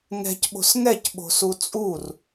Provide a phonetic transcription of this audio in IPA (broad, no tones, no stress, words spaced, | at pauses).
ŋɛ̤cɓo̤s ŋɛcɓo̤su t͡sʼur